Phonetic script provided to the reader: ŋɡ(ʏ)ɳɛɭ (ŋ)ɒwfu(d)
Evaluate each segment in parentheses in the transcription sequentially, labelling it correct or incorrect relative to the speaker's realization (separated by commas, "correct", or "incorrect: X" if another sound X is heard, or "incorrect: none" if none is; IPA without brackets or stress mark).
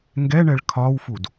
incorrect: ɛ, incorrect: kʰ, correct